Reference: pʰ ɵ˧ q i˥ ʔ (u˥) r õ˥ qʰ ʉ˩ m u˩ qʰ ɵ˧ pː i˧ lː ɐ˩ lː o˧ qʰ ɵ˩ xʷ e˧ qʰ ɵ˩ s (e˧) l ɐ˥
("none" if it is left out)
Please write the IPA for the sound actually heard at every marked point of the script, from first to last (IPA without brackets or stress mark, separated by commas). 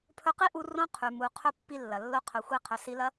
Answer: u˧, i˧